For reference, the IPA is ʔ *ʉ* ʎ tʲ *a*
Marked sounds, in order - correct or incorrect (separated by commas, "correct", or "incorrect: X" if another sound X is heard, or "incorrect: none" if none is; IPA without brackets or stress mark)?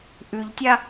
correct, correct